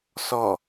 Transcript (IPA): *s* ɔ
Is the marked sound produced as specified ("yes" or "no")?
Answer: yes